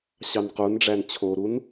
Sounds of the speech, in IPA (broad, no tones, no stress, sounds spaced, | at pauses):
ɕ ɑ n q u n ɖ͡ʐ æ n t͡ɕʰ o ɾ u n